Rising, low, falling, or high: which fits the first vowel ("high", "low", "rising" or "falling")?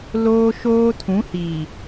high